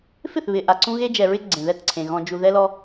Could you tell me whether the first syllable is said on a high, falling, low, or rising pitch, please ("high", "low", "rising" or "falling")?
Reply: falling